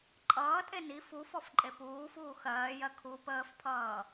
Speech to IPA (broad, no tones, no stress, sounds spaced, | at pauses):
ǃʼ ʌː tʼ e n i f u f ɔ f ǃʼ e p uː f uː x ɜː j ɜ kʰ u p əː f pʰ ʌː